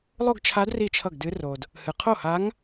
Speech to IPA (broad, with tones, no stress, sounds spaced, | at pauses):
lˠ o˥˧ ɡ t͡ʃʰ a˧˥ d r i˥˩ t͡ʃʰ ʌ˥˩ ɡ d ɨ˧˥ r o˨ d | h ɨ˨ qʰ o˥˩ h a˧˥ ŋ